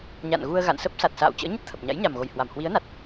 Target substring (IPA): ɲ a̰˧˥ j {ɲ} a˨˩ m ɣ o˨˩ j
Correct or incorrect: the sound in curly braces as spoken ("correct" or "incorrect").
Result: correct